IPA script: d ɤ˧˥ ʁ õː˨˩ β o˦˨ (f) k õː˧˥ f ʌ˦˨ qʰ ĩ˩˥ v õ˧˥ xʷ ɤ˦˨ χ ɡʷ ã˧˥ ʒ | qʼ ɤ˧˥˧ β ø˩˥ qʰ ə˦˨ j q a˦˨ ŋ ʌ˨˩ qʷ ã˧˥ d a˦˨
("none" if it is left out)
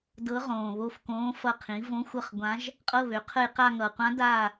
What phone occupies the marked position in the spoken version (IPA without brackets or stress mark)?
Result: f